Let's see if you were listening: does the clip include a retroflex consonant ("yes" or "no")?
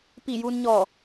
no